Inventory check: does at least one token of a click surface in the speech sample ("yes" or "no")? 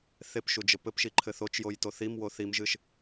yes